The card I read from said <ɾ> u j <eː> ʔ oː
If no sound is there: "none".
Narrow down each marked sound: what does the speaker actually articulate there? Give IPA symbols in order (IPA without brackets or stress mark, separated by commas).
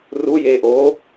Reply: r, eː